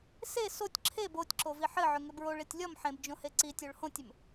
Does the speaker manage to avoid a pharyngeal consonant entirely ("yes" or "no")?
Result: no